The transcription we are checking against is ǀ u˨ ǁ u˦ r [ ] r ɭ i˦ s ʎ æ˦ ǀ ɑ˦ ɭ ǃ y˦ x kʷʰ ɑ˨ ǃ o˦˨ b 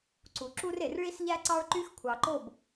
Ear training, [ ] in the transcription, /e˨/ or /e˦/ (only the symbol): e˨